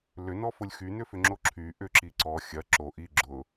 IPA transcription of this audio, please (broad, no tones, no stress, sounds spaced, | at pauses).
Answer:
l ʏ n ɔ f ʊ lʲ x y n ʏ f ʏ ŋ͡ǁ o ǁʰ y ʔ ʏ ǁ i ǀ ɔ xʲ ɐ ǁ o ʔ i ɡ͡ǁ ʊ